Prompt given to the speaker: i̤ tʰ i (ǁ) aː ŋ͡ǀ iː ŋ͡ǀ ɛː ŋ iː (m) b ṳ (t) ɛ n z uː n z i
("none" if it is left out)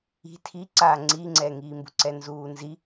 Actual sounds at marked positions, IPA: ǀ, m, ǀ

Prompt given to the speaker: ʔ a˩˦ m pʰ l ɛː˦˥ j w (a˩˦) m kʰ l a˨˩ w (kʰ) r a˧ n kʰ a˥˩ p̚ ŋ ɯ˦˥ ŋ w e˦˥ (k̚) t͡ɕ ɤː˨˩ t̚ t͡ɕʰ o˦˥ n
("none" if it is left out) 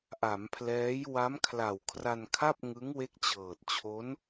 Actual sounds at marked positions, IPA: a˦˥, kʰ, k̚

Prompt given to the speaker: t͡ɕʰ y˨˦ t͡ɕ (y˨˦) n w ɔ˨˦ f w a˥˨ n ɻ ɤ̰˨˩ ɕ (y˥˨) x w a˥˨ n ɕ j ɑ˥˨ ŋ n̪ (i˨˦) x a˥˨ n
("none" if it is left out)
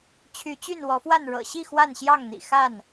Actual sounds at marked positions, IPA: y˥˨, i˥˨, ḭ˨˩

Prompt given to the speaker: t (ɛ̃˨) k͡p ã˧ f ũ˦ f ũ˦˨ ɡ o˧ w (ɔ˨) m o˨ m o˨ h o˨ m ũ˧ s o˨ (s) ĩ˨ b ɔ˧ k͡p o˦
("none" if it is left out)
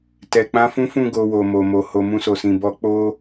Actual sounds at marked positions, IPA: ɛ˨, o˨, s

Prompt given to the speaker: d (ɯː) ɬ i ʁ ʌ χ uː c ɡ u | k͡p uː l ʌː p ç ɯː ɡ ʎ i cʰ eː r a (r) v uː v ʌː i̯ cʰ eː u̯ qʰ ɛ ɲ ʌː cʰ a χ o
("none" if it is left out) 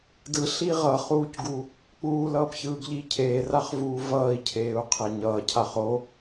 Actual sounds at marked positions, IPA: ɯ, χ

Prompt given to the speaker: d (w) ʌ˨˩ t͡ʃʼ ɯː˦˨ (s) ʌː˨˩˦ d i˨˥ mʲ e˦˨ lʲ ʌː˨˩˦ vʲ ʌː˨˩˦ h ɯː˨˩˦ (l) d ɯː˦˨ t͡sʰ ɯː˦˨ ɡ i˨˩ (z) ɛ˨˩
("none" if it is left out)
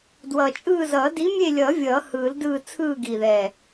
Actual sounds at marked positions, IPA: w, z, l, ð

